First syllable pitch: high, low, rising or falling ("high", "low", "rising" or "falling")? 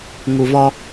low